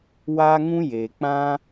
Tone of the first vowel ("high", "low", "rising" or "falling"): high